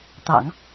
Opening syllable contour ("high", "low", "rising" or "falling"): low